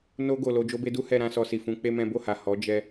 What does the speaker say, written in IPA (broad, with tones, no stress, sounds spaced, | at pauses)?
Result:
n o˧ ɡ o˨ l o˧ d͡ʒ o˧ b e˧ d u˦ h ɛ˧ ɾ ã˧ s ɔ˧ s i˨ f ũ˧ k͡p e˦ m ɛ̃˦ b o˦˨ h a˨ h ɔ˨˦ d͡ʒ ɛ˧